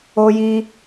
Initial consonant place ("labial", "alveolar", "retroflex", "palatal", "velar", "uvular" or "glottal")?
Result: palatal